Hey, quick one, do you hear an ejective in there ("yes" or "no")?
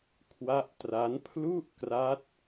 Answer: no